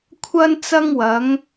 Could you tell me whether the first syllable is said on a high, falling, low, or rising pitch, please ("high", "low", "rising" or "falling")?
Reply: high